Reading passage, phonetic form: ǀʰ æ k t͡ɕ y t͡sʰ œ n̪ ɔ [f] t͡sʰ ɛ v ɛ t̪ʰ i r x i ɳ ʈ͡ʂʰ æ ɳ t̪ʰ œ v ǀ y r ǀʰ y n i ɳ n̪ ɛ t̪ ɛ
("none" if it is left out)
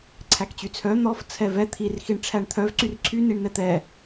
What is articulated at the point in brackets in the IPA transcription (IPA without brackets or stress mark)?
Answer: f